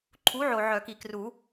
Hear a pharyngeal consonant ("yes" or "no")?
yes